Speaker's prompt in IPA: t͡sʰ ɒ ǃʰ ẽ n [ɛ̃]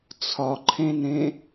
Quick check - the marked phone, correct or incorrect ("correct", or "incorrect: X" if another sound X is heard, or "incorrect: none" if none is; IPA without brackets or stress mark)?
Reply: incorrect: ẽ